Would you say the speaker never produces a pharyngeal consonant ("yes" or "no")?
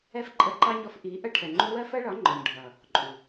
yes